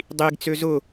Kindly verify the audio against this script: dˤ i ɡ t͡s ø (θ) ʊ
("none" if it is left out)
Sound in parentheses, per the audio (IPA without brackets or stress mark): z